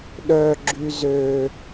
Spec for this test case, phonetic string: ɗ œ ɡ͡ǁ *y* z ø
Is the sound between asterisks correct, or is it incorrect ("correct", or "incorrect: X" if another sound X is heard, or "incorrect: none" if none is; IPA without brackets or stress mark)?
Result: correct